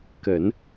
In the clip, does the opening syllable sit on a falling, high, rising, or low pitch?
low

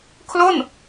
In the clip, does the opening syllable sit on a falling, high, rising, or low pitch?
falling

